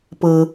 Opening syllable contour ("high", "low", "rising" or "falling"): low